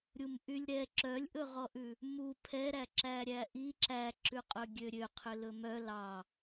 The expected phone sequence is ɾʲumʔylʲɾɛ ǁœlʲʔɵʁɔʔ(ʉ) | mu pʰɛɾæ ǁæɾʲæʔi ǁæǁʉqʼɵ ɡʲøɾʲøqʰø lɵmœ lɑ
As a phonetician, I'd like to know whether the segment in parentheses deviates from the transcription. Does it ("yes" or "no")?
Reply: no